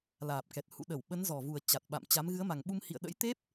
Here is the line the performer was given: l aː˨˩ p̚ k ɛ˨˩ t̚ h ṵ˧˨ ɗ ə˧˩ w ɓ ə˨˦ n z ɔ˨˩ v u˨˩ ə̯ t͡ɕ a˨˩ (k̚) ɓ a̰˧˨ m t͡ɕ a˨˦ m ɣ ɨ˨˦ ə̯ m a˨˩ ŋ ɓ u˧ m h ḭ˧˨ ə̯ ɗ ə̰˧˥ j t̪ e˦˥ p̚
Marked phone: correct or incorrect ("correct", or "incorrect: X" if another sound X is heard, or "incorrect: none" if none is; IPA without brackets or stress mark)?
incorrect: t̚